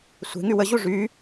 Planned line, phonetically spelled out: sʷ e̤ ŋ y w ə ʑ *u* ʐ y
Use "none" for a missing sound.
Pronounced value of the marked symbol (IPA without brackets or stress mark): u